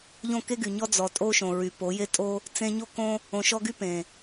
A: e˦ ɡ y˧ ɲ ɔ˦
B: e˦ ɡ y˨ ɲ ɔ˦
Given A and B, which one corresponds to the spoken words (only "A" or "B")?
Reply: B